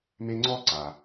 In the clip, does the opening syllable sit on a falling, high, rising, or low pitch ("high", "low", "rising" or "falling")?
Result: high